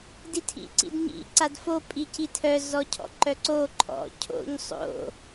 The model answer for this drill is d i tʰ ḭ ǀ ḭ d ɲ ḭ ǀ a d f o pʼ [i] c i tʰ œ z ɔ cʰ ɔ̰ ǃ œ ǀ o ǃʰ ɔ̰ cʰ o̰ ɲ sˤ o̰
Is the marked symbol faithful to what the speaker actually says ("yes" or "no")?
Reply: yes